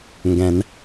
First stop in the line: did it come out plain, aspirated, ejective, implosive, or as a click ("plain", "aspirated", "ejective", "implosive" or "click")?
plain